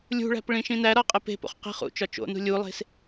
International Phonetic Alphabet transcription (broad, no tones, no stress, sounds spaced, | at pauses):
lʲ ṳ ɭ æ̤ p ɭ ĩ ʃ ĩ n æ ɾ ɒ qʼ e p e̤ p o̰ χ q i̤ χ ṵ t͡ʃ ɒ t͡ʃ o̰ n ṳ lʲ u lˠ e̤ s